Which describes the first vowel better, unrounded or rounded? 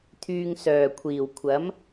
rounded